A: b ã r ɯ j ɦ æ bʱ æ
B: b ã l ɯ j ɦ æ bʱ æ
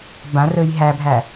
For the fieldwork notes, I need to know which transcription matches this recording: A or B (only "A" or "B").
A